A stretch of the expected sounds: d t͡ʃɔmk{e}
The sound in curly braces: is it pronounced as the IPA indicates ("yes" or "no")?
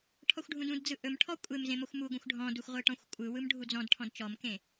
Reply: no